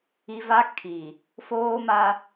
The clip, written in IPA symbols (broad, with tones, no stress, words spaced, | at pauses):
i˦ va˦ kʰi˨ | foː˦ma˦